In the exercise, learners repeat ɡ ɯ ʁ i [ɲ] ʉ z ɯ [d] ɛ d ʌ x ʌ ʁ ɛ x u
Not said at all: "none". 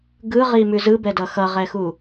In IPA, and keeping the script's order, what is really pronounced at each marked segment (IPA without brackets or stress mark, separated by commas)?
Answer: m, b